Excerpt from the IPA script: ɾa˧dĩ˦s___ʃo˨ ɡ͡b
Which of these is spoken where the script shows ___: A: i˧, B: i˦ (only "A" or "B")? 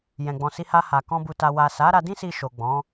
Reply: A